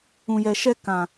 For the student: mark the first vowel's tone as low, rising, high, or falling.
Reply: low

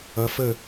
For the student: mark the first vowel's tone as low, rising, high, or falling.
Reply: rising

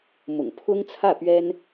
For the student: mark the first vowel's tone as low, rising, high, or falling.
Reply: low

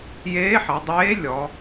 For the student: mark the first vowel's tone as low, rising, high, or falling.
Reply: rising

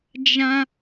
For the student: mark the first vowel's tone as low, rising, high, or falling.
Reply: high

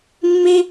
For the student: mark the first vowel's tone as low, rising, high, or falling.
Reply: high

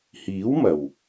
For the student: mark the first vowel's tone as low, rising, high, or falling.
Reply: rising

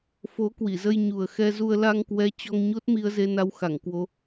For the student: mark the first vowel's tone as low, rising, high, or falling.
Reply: rising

